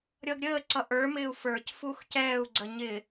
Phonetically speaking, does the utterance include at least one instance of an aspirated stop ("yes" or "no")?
no